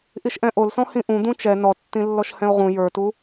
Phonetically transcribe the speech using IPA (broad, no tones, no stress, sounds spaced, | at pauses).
ʔ i ʃ ʔ ɛ̃ ʔ o l s ɔ̃ h ĩ ʔ ũ d̪ ũ t͡ʃ ɛ n ɔ tː ĩ lː ɔ ʃ h ɛ̃ o̯ ʁ ũ j ə˞ t u